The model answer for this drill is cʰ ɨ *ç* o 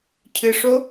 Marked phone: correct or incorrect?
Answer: incorrect